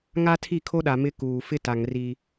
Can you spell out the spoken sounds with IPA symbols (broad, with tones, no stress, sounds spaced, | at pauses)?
ŋ a˦ tʰ i˦˨ kʰ o˦ ɗ a˨ m ɪ˦ k uː˨ f ɪ˦ t a˨ ŋ r i˦